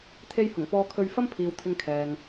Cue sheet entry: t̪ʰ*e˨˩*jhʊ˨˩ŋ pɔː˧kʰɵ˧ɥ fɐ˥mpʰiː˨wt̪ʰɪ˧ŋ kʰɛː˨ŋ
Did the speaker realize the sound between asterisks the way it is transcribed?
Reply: no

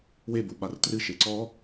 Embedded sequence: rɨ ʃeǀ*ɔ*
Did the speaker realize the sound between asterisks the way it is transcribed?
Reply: yes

